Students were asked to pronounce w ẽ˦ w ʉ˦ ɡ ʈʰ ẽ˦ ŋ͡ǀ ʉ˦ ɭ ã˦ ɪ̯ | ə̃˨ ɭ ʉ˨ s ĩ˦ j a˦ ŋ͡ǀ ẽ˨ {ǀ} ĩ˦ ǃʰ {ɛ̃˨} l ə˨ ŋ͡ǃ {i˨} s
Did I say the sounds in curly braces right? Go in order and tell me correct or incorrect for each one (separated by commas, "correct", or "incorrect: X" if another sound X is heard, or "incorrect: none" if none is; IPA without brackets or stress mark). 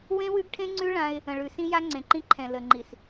incorrect: ǃ, correct, correct